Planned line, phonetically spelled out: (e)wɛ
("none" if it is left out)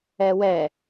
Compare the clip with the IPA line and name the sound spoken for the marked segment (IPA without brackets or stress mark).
ɛ